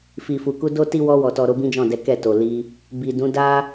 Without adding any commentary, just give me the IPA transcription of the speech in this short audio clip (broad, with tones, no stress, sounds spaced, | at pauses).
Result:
f i˨ f u˨ k u˧ d o˦ t i˦ w ɔ˧ w ɔ˨ t ɔ˨ ɾ o˨˦ b ĩ˦ d͡ʒ ɔ̃˦˨ d ɛ˨˦ k ɛ˦˨ t o˨ l i˧ | b i˨ d ũ˨˦ d a˦